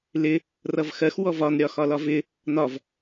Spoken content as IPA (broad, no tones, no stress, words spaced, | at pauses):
lɪ | rʌvxɜx wɔvɒn ɾʲɒxɒlɒvɪ | nɒv